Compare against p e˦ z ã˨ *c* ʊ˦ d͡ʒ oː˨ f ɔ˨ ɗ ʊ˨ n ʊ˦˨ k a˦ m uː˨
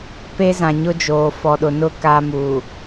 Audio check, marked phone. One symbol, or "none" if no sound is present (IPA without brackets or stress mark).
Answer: ɲ